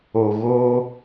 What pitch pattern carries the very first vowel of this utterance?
low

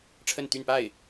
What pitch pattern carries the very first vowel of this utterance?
falling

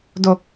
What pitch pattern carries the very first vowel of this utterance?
low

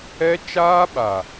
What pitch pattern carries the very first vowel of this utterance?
high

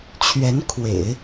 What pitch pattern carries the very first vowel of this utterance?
rising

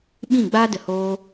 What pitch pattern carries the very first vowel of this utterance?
falling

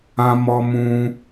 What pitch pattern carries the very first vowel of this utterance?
high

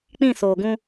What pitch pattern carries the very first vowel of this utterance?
falling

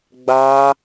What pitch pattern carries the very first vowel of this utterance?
high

